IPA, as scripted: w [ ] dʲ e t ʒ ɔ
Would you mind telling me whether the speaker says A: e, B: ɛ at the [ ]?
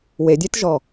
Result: A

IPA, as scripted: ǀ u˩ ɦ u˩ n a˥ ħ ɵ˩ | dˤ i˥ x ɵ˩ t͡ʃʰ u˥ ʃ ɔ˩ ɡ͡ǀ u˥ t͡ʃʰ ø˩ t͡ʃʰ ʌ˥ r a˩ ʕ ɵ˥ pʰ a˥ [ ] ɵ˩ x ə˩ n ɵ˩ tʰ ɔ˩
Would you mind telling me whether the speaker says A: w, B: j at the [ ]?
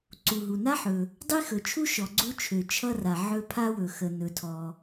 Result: A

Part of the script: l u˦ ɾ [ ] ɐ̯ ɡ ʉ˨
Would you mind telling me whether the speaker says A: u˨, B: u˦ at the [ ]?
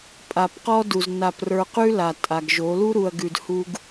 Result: A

